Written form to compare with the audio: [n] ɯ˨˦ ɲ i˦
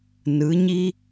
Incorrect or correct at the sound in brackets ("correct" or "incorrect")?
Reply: correct